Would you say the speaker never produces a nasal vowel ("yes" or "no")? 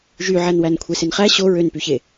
yes